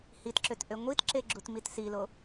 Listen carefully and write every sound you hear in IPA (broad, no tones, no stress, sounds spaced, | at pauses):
h i t ǁ ø t ʔ ø ŋʷ i t ǁ e ɡ͡ǁ u t m i t s i l o